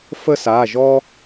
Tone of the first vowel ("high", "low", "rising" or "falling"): high